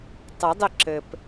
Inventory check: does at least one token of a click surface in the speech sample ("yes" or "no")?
yes